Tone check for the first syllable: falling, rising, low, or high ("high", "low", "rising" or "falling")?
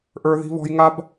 high